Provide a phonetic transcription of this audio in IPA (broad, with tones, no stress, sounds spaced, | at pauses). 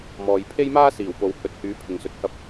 m ɔː˨ j pʰ e˥ j m aː˥ s iː˨˩ w p o˨ w h ɵ˨˥ t̚ h yː˨˥ pʰ ɪ˨ ŋ s ɵ˨ t̚ h ɐ˥ p̚